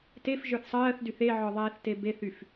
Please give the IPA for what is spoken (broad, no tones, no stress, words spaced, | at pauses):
tefʒə˞θ sˤɜːθdyθ eʕɔðˤɛːθte beθyf